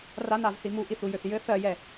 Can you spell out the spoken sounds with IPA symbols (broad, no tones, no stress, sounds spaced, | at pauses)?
r a n a v θ i m u ʔ i θ u j ø θ j ɘ θ ɜ j ɛ